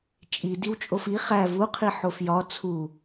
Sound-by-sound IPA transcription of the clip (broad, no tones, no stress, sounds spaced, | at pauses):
t͡ʃʼ i d i w t͡ʃʼ o f i χ æ v u qʰ i ħ o f j ɒ t͡sʰ u